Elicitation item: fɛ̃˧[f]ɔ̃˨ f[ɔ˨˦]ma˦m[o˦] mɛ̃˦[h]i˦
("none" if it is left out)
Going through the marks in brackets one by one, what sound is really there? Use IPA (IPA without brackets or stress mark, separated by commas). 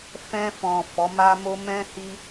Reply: f, ɔ˨˦, o˦, h